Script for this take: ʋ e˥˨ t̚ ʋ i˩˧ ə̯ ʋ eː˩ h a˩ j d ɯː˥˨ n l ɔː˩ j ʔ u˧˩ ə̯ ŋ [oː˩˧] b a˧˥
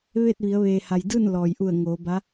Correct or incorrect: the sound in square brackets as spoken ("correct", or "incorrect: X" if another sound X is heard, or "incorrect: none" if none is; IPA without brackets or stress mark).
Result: correct